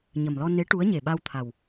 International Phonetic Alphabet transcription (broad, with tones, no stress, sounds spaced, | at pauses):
ɲ ə˨˩ m l ɔ˧ n e˧˥ ʈ u˧˥ ə̯ ɲ e˨˩ ɓ a˧ w t̪ʰ a˨˩ w